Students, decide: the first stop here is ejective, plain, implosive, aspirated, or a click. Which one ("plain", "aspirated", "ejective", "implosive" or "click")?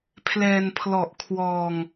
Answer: aspirated